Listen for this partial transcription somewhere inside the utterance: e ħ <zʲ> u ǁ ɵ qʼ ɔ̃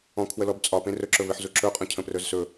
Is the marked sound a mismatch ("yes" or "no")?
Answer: yes